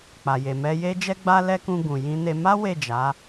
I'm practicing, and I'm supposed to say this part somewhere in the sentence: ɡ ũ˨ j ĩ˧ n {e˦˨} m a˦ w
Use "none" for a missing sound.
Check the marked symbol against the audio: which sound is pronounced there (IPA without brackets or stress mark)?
e˧